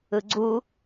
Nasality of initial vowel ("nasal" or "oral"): oral